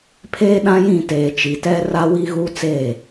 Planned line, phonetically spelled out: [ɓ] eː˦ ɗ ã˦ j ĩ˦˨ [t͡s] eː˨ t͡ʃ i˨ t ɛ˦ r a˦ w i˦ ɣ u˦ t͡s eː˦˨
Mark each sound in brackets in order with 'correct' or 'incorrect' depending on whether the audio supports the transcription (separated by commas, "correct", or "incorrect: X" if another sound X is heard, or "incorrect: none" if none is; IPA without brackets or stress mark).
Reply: incorrect: pʰ, incorrect: t